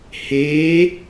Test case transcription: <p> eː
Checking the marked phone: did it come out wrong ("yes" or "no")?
yes